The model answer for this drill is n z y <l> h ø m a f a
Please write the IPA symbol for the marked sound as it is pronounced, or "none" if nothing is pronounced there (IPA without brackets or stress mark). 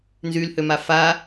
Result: l